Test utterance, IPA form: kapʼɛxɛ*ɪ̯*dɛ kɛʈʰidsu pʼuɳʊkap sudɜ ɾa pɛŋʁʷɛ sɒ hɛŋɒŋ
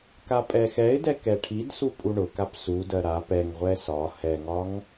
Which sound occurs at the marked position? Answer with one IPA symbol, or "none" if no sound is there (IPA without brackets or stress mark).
ɪ̯